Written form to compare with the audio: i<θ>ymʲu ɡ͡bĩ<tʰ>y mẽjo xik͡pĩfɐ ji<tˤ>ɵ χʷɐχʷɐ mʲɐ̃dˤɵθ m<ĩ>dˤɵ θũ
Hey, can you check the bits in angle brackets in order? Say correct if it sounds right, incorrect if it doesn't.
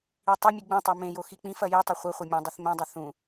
incorrect: tˤ, incorrect: tˤ, correct, incorrect: ẽ

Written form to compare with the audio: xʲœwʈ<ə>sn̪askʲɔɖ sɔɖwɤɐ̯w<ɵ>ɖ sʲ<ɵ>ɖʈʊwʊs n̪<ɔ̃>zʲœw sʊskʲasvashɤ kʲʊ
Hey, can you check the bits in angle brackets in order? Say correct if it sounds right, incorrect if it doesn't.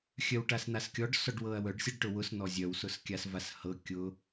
incorrect: a, incorrect: œ, incorrect: ɤ, incorrect: ɔ

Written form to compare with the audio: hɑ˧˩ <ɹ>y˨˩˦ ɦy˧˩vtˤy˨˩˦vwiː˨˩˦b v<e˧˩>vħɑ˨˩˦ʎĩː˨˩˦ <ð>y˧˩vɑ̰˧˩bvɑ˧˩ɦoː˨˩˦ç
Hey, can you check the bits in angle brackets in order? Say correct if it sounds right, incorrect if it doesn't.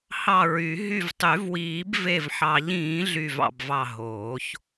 correct, correct, incorrect: ɮ

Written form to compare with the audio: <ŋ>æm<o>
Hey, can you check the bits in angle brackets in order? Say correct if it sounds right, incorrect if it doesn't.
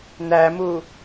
incorrect: n, incorrect: u

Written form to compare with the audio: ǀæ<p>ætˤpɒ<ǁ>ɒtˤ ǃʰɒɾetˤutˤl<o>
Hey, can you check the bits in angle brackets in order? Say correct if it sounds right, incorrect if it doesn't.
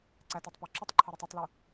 incorrect: t, correct, incorrect: u

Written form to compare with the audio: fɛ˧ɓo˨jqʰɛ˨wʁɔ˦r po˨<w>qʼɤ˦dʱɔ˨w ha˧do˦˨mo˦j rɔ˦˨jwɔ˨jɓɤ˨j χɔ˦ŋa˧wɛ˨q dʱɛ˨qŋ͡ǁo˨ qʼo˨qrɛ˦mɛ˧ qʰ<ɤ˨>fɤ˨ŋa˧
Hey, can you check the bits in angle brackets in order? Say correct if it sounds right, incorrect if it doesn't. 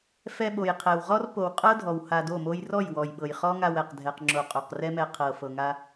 correct, correct

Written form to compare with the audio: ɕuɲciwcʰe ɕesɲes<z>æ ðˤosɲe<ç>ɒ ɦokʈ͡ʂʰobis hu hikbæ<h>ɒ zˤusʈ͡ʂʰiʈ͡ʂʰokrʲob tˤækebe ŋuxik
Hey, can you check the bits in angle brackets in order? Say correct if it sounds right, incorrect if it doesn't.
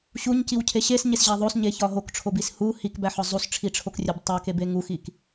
incorrect: ʑ, correct, incorrect: ħ

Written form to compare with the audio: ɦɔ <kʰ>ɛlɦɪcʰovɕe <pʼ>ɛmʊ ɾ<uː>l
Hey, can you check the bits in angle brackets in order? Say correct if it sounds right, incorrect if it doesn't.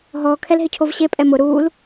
correct, correct, correct

